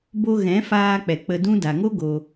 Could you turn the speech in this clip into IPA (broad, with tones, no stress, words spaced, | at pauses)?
bo˧ɣɛ̃˨˦ faː˧k͡pɛ˨ k͡pə˧dũ˦ da˨ŋo˦ ɡo˧